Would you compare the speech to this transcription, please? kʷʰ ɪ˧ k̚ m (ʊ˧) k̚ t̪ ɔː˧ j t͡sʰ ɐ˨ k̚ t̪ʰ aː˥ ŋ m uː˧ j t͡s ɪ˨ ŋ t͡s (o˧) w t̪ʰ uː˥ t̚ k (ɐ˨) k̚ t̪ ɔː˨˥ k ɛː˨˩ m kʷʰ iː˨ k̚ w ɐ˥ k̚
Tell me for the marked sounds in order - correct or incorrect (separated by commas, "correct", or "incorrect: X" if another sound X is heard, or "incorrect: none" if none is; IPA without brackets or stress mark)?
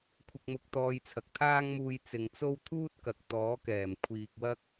correct, incorrect: o˥, correct